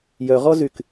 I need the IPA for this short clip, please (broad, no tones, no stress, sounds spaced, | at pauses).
j œ ʁ ɔ z y k